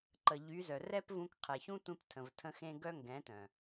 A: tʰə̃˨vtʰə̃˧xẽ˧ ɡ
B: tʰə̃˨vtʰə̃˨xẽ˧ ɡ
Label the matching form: A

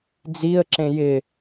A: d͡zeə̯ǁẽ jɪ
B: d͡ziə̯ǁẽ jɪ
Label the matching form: B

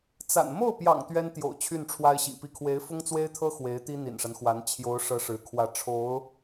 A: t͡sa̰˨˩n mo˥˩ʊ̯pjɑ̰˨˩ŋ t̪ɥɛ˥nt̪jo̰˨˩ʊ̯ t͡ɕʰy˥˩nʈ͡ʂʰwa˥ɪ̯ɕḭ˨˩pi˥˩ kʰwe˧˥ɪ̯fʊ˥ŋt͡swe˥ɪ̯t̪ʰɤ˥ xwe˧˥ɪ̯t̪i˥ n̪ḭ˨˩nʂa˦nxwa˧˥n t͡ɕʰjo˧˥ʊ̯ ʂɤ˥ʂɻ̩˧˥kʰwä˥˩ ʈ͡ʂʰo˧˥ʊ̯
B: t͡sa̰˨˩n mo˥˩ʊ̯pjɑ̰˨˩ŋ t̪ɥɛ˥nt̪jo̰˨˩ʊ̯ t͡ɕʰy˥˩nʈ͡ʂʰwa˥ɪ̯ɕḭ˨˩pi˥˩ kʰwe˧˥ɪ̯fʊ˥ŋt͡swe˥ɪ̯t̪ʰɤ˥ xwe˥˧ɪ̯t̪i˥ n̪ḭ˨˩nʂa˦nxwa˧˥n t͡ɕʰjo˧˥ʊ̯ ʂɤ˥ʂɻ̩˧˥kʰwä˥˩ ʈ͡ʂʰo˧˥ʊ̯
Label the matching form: A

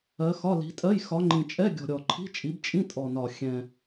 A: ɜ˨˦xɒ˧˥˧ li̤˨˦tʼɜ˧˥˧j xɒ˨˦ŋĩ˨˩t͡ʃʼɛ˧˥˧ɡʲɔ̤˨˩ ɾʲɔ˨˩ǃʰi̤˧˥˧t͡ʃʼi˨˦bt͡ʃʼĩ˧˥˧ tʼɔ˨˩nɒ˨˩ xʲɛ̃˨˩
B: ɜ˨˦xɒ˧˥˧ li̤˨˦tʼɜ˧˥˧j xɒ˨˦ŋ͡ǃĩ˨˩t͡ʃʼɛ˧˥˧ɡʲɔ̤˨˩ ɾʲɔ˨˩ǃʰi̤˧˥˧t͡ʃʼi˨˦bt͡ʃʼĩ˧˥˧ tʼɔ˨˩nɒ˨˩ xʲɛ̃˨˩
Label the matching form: B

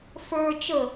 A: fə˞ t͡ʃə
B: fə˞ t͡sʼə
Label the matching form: A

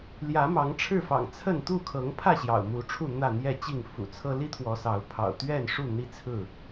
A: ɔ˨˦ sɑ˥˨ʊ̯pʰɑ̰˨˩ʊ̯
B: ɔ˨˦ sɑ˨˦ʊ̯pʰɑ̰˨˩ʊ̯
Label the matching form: B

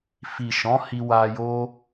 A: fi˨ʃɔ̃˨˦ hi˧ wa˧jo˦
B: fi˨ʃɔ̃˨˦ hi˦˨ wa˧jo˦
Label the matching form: A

